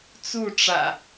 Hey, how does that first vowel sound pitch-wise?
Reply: falling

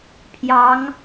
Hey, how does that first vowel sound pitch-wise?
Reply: rising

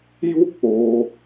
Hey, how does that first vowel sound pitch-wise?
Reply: high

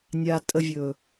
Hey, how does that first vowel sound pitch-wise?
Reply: low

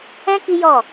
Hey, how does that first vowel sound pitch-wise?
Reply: high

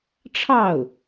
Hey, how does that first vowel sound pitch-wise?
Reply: falling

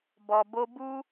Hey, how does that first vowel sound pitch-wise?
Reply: low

